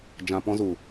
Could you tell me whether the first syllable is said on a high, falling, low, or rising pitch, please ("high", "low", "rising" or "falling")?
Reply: low